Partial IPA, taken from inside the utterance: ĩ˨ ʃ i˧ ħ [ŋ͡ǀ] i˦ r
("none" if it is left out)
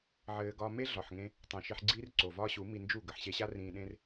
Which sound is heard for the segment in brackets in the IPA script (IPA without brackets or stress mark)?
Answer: ɡ͡ǀ